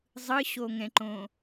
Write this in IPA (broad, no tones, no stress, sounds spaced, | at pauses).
zˤ ɯ ɕ o ŋ ɛ̃ ǃ õ